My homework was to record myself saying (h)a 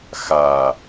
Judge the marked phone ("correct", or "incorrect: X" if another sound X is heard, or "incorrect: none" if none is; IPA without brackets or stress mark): incorrect: x